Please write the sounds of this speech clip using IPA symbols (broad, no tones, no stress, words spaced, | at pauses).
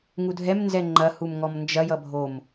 ŋudʱɛmnzɛ ŋ͡ǃɐ humŋɔmnd͡ʒɐjʌ bʱom